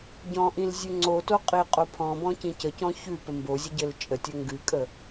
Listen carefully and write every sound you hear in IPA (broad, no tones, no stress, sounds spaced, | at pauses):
ɟ ɔ̃ ʔ ĩ l zʲ ʉ ŋ͡ǀ o t o qʼ i qʼ o pʰ ɔ̃ b ɔ̃ c ĩ c ə c ɔ̃ ç ʉ p ə m b o zʲ ə ɟ ɘ l t͡ʃʼ ə tʲ ɘ ŋ ɡ ʉ kʼ ə